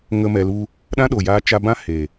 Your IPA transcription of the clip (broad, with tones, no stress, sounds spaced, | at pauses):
ŋ ə˦ m ɛ˧ l u˦ | ɗ ã˦ ɗ o˨ j aː˧ t͡ʃ a˧ b ã˦ h e˨